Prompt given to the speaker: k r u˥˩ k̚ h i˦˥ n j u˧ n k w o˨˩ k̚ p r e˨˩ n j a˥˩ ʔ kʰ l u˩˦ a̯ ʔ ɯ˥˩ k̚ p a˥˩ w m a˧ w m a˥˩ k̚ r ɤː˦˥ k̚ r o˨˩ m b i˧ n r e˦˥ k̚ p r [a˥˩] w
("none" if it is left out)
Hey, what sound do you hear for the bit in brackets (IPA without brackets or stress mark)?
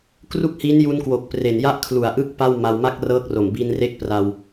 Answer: a˧